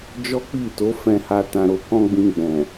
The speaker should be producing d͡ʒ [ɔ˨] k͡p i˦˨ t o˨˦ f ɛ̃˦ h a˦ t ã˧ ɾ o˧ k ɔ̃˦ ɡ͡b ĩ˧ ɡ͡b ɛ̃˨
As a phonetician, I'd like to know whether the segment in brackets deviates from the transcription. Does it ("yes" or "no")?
yes